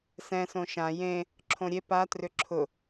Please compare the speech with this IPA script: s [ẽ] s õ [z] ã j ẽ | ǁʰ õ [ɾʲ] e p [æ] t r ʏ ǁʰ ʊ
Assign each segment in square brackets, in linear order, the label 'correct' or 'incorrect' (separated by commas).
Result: incorrect, incorrect, correct, incorrect